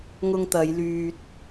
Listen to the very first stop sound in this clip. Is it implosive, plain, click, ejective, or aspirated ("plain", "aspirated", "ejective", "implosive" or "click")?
plain